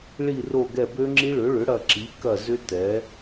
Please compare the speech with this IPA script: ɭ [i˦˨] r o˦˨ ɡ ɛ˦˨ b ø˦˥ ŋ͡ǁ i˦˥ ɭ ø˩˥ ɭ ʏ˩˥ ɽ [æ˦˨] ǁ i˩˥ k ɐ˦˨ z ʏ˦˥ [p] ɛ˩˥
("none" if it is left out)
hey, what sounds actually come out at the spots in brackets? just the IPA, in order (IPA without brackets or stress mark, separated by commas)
i˦˨, ɐ˦˨, t